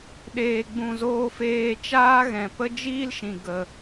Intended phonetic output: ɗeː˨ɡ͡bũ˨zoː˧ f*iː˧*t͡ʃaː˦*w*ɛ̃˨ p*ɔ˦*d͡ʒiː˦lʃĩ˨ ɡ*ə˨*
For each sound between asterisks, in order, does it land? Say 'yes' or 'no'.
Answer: no, no, no, yes

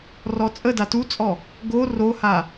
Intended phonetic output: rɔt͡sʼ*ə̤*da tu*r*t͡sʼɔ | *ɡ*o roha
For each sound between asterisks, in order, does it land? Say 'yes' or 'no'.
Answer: no, no, yes

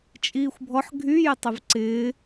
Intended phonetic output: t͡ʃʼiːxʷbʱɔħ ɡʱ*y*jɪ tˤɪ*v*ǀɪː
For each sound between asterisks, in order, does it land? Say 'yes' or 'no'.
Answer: yes, yes

